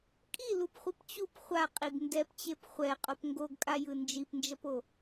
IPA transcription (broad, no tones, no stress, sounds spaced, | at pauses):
kʼ i l u p χʷ i p t͡ɕ u p χʷ a qʼ i ɡ n d ɛ p t͡ɕ e p χʷ ɛ qʼ o p ŋ ɡ o ɡ kʼ a j ɯ n d͡ʒ i p n d͡ʒ ʌ p o